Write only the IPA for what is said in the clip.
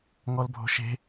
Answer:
ŋ ɔ l bʱ o̤ ʃ e̤

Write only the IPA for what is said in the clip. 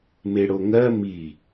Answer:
m e ɽ o ŋ ɜ m i

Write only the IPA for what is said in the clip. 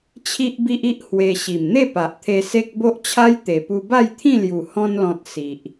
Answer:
t͡ɕʰ i˦ ʔ b i˦ ʔ i˦ ʔ h w e˧ ɕ i˨˩ m n̪ e˥˧ p a˨ ʔ t̪ʰ e˧ s e˦ k̚ b o˦ ʔ t͡ɕʰ a˦ j t̪ e˨˩ p u˧ b a˥˧ j t̪ʰ ĩ˥˧ l j u˨˩ h ɔ̃˧ n l ɔ̃˨ t̚ s i˨ ʔ

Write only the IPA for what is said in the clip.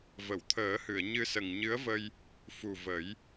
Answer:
v ə˨˩˨ w t̪ʰ əː˨˩˦ h ɨ˨˩˨ ə̯ ɲ ɨ˧ s ə˨˩ ŋ ɲ ɨ˧˥ ə̯ v ə˧ j | f u˨˩ v ə˨˩˦ j

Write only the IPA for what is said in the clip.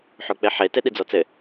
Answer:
ħ o k͡p e ħ e t e ɗ i d͡z ɔ t͡s ɘ

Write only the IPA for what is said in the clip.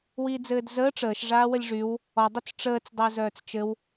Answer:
w iː d͡z ɘː d z əː ʈ͡ʂ əː ʃ ʐ aː w ə lʲ ʐ y w | ɔ dˤ ə t͡s ʈ͡ʂ əː t͡s dˤ ɘː z œː t͡s t͡ʃ ɘ w

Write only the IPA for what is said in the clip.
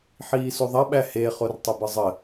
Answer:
ħ iː s u ðˤ ɐ ɓ æ h e χ o r tˤ ə b ɯ zˤ ə

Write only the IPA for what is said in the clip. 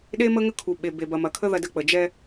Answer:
ɗ e˦ m ə˦ ŋ ə˦ kʰ u˨ ɓ e˨ b e˨ b ɐ˨ m ɐ˨ kʰ ə˦ ð ɐ˨ d ə˨ k͡p ə˨ d͡ʒ ɛ˦

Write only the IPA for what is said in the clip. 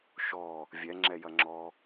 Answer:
ʃ ɔ | vʲ ɛ ŋ͡ǁ ɛ j ɐ ŋ͡ǁ ɔ

